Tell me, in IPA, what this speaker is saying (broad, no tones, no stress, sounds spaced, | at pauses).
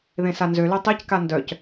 ð ẽ s a n z ø l ø tˤ i c k a n d œ c